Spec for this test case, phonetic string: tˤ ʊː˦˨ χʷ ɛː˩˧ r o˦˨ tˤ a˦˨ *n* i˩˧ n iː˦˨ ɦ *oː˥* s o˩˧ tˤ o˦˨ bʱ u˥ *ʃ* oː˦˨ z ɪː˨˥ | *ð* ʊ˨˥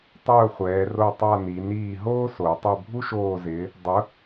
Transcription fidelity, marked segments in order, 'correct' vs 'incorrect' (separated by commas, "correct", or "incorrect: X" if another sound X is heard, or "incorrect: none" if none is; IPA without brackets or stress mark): correct, correct, correct, incorrect: dˤ